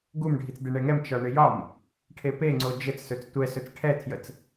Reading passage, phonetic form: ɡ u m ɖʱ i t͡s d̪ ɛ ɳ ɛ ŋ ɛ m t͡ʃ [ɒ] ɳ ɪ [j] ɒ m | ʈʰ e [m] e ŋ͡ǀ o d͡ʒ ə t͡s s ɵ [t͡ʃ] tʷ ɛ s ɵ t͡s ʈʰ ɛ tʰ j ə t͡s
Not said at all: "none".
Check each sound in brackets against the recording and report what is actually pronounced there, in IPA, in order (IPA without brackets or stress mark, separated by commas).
ɒ, j, p, t͡s